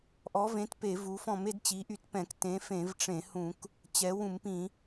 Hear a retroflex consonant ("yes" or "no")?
yes